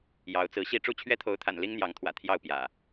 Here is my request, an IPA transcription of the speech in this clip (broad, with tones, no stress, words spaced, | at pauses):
jɑ˨˦ʊ̯t͡sɹ̩˨˦ɕi˥˨ ʈ͡ʂu˥˨t͡ɕʰɥɛ˦t̪ʰo˨˦ʊ̯t̪ʰa̰˨˩n li˦ŋn̪jɑ˨˦ŋt̪ʰwä̰˨˩ t̪ʰjɑ˥˨ʊ̯pjä̰˨˩